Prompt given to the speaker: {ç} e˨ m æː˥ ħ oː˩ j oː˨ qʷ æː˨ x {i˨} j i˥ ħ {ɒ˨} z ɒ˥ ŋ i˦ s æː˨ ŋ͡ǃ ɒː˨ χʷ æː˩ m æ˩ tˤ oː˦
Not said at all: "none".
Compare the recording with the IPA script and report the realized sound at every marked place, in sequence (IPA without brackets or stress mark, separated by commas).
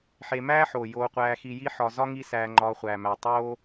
ħ, i˨, ɒ˨